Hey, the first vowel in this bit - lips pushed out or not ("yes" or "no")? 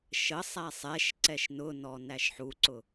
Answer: no